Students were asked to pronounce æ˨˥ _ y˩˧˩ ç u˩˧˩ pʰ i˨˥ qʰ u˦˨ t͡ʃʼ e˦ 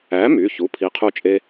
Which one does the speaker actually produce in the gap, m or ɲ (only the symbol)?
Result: m